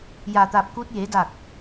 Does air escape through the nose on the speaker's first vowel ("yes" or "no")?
no